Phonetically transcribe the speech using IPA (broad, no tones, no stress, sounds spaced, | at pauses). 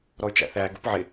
ɾ ɔ y̯ t͡ʃ æ̰ θ æ ɡ ṵ p ʕ ɪ